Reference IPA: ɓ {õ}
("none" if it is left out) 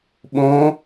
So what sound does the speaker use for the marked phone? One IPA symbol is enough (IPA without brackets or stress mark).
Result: õ